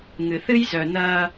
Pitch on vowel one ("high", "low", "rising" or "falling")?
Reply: low